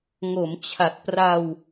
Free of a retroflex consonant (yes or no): yes